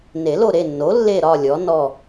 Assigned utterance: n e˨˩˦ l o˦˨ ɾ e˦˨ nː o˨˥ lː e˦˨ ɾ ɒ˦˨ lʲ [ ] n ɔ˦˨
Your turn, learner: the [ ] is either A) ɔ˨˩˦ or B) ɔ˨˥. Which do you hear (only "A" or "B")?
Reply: B